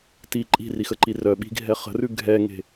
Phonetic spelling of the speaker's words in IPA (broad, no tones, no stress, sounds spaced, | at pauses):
t i ǃʼ i̤ r i x ə ǃ i r œ ɓ i̤ ɡʱ ɛ χ ə̤ r ʉ ɡʱ ɛ ŋ e̤